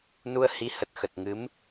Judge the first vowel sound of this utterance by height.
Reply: high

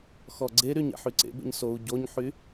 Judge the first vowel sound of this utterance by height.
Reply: mid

